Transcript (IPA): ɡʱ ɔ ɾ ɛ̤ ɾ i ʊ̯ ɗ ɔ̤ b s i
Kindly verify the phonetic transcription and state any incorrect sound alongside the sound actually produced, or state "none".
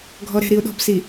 none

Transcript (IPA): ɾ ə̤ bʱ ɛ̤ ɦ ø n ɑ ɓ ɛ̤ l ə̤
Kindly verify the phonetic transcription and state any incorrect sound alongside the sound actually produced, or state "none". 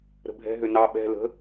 none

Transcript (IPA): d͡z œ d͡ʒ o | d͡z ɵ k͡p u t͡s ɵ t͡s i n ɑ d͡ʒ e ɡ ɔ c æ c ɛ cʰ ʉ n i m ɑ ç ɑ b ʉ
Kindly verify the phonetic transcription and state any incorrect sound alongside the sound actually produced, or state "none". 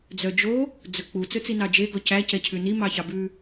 none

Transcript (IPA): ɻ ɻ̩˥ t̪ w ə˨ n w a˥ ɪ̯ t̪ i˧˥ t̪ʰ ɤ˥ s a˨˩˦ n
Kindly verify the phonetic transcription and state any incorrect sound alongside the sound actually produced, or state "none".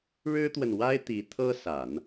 none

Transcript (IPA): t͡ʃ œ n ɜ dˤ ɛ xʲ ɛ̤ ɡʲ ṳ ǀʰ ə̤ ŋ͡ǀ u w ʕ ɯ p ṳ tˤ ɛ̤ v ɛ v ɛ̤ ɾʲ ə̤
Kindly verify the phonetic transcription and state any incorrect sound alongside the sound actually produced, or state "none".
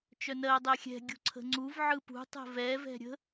w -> v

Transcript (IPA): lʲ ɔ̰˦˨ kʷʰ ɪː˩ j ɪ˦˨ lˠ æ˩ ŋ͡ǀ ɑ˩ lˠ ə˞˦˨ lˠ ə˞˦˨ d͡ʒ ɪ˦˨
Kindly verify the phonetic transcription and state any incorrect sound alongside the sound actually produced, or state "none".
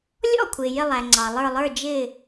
none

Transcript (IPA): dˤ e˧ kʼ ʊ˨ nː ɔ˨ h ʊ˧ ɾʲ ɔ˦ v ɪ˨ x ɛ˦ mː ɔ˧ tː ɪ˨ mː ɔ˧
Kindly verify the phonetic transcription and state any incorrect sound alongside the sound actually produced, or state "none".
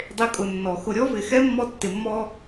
h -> x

